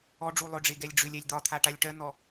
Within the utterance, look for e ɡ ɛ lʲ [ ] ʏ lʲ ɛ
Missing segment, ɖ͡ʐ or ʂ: ɖ͡ʐ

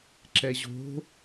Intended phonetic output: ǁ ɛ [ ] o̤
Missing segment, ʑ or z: ʑ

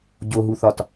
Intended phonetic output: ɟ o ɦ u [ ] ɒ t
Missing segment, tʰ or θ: θ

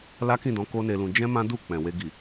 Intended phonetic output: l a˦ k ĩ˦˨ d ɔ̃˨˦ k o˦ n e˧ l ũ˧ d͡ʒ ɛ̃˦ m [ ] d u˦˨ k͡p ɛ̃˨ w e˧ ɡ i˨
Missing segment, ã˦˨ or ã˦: ã˦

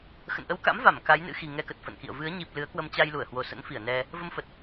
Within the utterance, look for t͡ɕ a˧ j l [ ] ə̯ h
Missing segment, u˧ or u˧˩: u˧˩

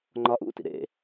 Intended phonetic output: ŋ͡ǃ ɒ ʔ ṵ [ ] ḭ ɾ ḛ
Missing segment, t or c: t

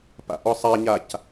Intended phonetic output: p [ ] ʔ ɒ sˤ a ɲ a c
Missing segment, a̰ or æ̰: a̰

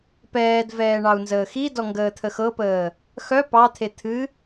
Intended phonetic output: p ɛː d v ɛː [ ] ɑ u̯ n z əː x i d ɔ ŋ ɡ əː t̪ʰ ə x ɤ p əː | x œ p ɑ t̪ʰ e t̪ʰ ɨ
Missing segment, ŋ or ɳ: ɳ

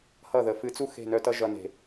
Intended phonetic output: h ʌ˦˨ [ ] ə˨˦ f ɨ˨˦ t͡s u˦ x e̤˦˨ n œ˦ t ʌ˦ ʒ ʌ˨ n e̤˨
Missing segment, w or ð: ð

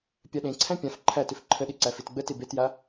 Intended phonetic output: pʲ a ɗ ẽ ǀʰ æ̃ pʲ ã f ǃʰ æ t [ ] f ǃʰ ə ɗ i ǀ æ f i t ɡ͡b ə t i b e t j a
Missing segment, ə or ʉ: ʉ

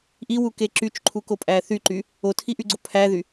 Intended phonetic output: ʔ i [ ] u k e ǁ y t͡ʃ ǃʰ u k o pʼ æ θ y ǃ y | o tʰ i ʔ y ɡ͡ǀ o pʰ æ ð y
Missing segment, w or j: w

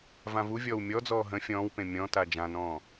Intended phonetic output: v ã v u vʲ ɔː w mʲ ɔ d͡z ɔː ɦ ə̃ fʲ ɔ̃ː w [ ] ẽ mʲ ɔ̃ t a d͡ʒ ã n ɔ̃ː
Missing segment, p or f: p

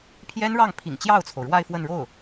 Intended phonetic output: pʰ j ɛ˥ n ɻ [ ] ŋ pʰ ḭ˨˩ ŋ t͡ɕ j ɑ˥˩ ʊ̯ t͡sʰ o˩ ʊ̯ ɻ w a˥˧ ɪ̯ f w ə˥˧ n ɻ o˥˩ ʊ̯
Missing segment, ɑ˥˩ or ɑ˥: ɑ˥˩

